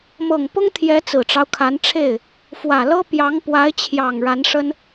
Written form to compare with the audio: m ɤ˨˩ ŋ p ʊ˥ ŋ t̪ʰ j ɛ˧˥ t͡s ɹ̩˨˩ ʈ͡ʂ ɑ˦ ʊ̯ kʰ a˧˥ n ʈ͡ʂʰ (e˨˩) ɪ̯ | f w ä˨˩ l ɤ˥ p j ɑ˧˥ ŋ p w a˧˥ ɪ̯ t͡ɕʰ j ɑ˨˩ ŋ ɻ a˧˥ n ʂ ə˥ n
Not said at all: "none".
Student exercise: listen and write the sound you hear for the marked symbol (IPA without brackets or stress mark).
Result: e˥˩